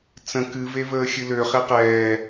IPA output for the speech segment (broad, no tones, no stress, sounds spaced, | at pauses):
t͡s ə̃ k ɨ v e v əː xʲ ɨ l ø χ e q ɛː